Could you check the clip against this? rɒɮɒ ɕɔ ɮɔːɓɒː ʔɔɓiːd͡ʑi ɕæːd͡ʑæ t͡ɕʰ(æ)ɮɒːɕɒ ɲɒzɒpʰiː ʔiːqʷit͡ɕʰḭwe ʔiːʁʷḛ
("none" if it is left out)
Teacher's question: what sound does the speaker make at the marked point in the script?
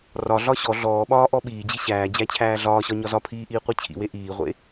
æː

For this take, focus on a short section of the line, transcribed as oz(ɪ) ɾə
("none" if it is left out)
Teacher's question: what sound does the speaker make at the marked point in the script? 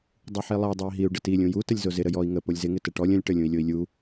ɪ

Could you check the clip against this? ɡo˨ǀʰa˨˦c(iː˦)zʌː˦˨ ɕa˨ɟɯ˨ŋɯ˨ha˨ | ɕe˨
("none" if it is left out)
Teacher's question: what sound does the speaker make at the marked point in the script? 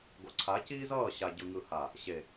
iː˦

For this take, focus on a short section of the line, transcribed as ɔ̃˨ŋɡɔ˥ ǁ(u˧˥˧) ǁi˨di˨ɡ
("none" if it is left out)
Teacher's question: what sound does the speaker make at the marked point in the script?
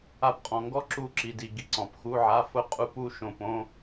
u˥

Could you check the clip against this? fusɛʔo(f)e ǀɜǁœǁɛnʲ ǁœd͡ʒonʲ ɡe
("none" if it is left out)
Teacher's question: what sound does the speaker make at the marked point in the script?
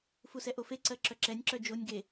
f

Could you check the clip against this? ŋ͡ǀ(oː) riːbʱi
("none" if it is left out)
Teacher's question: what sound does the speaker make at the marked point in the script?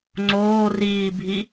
oː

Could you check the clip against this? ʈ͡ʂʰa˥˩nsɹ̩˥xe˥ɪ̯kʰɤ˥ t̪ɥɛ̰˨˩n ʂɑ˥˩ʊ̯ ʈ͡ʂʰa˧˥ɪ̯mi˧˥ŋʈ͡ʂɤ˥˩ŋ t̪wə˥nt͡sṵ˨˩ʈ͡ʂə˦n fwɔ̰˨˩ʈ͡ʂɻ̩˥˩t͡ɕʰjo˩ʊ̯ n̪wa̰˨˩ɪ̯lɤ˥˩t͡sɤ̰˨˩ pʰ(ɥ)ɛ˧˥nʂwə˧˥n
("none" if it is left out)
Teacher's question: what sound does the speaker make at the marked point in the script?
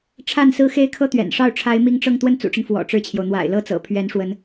ɥ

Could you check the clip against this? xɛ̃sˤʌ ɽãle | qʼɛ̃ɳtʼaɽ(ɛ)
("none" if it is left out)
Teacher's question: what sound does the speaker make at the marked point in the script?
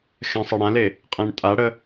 ə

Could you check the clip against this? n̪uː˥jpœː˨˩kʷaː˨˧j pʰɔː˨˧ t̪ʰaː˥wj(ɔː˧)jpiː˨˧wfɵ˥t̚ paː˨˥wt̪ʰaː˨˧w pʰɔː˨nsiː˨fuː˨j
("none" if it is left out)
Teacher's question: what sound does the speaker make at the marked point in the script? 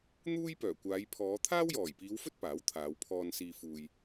ɔː˨˩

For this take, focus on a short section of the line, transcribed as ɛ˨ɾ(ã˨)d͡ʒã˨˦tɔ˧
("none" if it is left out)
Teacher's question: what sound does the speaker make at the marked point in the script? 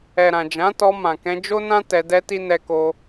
ã˨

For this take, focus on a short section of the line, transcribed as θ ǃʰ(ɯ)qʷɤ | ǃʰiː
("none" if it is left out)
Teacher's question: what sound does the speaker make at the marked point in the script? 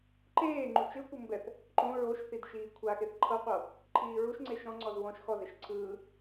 ɤ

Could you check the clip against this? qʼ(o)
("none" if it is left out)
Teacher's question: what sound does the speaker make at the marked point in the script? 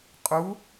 u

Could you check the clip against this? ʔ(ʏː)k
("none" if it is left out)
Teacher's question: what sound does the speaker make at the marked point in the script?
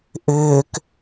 ʏː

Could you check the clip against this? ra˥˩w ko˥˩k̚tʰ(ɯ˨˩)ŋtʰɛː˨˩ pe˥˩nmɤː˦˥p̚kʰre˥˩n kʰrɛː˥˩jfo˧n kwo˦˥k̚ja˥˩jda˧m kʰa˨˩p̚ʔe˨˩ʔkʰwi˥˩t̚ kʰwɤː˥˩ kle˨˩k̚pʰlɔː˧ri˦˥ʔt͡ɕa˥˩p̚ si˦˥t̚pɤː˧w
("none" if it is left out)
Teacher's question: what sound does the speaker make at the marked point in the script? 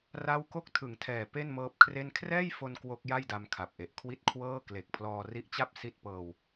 ɯ˨˩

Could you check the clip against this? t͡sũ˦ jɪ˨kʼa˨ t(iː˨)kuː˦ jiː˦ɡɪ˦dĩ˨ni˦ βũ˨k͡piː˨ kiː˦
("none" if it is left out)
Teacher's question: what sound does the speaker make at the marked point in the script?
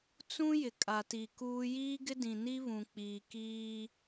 i˨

